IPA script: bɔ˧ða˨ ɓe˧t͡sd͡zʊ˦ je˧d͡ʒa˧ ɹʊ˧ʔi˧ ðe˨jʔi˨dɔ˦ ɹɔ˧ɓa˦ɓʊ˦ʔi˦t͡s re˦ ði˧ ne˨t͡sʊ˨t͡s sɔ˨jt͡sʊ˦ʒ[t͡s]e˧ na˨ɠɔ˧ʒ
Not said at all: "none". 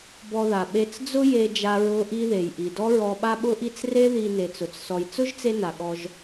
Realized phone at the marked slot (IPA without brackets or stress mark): t͡s